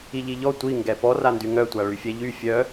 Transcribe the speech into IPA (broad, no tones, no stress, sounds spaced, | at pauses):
i ʎ i ʎ ɔ tʷ i ŋ ɡ ɛ p ɔ r a n d y ŋ œ tʷ a ɭ y fʲ ɛ ʎ y fʲ œ